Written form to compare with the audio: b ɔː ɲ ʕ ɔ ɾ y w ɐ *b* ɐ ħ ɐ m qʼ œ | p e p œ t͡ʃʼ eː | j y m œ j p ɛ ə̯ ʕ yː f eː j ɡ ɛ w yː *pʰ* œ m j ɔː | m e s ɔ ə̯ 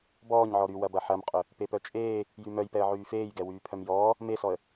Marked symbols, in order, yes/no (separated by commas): yes, yes